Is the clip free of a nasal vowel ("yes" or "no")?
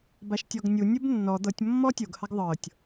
yes